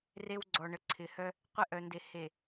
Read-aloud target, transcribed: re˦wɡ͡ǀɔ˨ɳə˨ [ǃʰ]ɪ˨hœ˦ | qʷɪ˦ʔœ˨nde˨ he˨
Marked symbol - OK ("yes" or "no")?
no